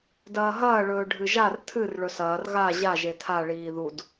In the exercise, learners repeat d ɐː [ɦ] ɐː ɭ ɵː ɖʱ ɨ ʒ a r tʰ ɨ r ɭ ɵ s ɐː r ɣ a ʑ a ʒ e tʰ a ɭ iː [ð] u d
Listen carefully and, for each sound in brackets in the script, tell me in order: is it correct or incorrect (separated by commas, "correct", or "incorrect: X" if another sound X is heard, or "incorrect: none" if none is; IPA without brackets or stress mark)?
correct, correct